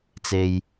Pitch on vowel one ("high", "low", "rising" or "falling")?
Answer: low